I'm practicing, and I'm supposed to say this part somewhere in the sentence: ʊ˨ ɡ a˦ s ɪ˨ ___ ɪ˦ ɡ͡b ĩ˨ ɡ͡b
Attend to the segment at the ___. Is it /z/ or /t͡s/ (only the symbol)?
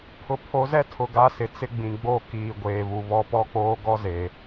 t͡s